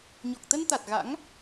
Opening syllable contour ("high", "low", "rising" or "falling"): low